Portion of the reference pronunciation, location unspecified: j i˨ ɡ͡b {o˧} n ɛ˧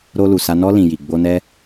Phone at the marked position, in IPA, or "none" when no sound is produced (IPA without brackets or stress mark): o˧